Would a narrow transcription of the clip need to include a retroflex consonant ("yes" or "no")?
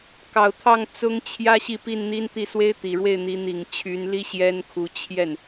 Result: yes